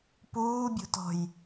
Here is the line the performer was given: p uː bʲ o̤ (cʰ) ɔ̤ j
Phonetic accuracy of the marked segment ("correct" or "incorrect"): incorrect